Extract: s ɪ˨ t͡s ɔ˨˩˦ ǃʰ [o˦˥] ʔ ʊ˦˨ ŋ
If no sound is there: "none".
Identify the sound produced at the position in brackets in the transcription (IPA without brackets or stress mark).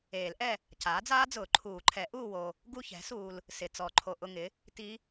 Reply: o˨